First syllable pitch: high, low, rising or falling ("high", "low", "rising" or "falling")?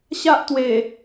high